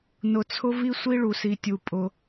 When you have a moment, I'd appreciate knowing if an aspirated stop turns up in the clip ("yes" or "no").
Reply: yes